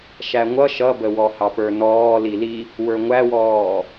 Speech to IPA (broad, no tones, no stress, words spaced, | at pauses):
ʃæŋʷʌ ʃʌbəwɔ hɑpə˞nɔː lili | wə˞ŋʷæwɔː